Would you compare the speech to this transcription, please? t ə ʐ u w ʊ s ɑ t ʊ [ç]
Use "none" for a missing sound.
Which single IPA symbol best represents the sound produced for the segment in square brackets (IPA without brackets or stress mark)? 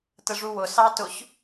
ç